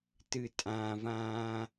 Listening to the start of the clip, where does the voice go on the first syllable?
low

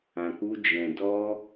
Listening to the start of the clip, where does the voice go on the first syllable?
low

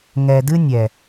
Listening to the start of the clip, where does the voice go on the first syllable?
low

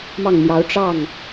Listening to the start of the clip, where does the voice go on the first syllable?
falling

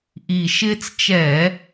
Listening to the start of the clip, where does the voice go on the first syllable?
low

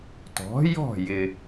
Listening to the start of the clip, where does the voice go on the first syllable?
rising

